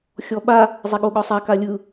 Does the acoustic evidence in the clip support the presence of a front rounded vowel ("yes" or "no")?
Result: no